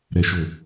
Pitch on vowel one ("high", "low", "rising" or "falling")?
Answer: high